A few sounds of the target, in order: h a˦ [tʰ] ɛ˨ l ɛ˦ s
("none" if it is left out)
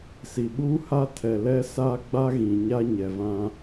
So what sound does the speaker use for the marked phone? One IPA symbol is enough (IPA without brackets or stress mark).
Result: tʰ